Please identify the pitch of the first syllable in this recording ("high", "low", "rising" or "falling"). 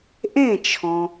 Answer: falling